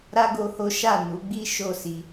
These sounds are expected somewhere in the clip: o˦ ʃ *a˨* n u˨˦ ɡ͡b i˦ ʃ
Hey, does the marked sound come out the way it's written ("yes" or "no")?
no